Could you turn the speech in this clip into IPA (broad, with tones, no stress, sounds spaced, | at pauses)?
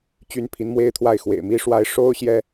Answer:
t͡ɕ y˥ n pʰ i˧˥ n m w e˥ ɪ̯ t̪ʰ w a˥˩ ɪ̯ x w ḛ˨˩ ɪ̯ m i˥ ʂ w a˥ ɪ̯ ʂ o˥ ʊ̯ ɕ j ɛ˥